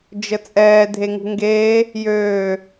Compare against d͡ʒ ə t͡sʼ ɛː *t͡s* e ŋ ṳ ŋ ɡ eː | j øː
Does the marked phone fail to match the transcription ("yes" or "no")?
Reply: yes